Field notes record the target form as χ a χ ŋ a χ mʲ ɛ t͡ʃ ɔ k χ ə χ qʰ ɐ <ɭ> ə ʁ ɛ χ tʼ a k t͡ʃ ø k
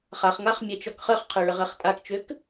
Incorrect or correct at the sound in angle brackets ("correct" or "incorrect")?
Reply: correct